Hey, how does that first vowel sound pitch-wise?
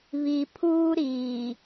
low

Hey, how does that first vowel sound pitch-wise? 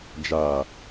low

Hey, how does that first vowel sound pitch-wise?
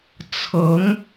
rising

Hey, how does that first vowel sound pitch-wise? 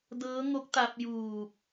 rising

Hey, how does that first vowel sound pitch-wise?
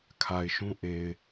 low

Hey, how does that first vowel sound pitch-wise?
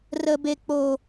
low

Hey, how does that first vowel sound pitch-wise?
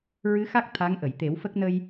rising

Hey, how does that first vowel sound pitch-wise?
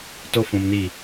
high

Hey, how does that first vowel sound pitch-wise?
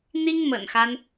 high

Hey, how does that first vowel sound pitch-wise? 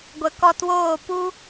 low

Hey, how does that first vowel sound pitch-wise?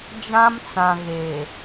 high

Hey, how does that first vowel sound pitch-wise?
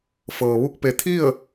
low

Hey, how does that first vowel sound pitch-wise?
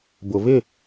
low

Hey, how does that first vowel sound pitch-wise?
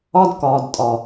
high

